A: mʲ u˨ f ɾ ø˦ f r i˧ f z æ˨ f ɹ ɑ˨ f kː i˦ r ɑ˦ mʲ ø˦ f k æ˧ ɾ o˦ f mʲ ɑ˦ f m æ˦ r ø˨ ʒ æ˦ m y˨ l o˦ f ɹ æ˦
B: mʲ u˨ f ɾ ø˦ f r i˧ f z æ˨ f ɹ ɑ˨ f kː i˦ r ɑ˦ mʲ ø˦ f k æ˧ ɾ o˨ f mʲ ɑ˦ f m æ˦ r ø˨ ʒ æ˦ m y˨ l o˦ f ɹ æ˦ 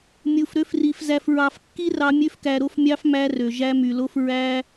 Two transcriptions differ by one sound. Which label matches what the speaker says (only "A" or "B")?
A